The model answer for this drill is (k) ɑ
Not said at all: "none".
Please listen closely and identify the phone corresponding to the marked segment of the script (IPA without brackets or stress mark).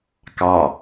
k